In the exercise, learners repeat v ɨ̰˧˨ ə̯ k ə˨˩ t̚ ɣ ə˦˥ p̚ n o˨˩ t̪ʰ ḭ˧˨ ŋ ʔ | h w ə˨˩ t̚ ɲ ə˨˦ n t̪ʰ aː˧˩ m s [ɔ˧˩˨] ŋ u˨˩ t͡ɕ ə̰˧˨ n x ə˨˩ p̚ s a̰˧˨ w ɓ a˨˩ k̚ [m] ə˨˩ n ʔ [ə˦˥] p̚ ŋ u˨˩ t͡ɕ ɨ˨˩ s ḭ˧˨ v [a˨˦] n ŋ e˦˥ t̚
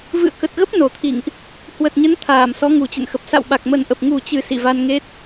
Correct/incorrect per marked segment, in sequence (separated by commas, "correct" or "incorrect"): incorrect, correct, incorrect, incorrect